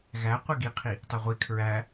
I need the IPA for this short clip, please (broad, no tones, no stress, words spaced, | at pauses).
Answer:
ɣæ qʷeɡiqʰi | tˤeʁʷi kʰɹæ